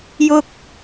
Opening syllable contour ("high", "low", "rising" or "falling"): high